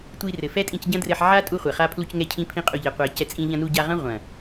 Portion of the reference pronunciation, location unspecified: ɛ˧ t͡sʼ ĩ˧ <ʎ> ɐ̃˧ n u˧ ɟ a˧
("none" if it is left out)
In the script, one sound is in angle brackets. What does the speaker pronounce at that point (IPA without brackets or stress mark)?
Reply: ʎ